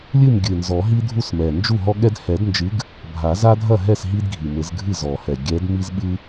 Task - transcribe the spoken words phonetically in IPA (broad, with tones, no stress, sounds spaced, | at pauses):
lʲ ɨ˥˩ m ɡʲ ɨ˨˩ n z ɔ˨˩˦ ɦ i˦ dʱ u˥˩ s m ɛ˨˩ n d͡ʒ u˥˩ ɦ ɔ˦ ɠ ɛ˦ d h ɛ˨˩˦ d n d͡ʒ ɨ˨˦ ɡ | bʱ a˨˩˦ z a˦ dʱ ɐ˥˩ ɦ ɛ˥˩ s ɦ i˦ d ɡʱ i˨˩ m ɘ˨˩˦ z ɡʱ ɨ˥˩ z ɔ˨˩ h ɛ˨˩ ɡʲ ɛ˨˦ d m i˦ z ɓ ɨ˦